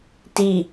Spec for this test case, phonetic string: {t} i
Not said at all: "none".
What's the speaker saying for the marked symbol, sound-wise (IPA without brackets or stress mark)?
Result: t